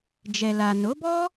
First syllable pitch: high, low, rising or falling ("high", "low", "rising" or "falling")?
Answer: low